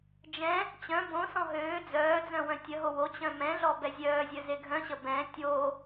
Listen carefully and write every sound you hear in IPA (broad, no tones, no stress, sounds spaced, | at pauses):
d͡ʒ ɛ̃ | t͡ɕ œ̃ b õ s ɔ̃ ɦ øː d͡z œː d͡z œ̃ w œ̃ tʲ ə ɦ o w o t͡ɕ œ̃ m ɛ̃ ɮ ɔ b ɛ zʲ œː zʲ œ z e ɡʱ œ̃ ɕ ə b ɛ̃ tʲ o